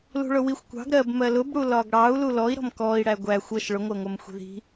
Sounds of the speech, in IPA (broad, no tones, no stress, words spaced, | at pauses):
lṳɭʊwixʷ kʷɑ̤ɡ ɾɜbmɜ lʊbɽu lɒɡɽɑu̯ lulɔi̯ɾɔ̤m kɔi̯ɽæ ɡʷæ xʷʌʃ ɭʊŋʷɜŋʷɜm xʷi̤ði̤